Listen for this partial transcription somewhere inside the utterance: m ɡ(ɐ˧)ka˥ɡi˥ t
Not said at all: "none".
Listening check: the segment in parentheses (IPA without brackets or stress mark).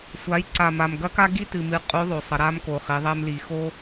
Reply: ɐ˧˥